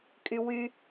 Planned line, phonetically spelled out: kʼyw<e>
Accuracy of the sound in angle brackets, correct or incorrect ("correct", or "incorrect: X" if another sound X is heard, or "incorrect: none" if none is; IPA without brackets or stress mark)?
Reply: incorrect: y